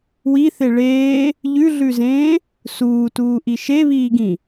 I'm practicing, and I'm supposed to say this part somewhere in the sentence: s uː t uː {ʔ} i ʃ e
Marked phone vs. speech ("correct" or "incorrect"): correct